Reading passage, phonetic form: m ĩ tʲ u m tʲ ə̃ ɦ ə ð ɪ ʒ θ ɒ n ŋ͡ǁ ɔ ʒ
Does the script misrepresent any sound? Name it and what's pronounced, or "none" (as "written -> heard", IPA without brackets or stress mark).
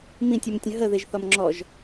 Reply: n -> m